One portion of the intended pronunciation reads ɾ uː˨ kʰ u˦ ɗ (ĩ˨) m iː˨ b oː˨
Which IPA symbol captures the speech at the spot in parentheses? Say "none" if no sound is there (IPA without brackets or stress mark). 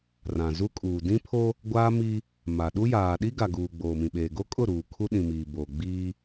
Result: ĩ˨